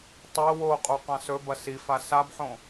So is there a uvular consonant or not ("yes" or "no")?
yes